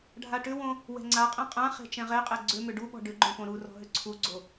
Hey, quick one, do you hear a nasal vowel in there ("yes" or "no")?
yes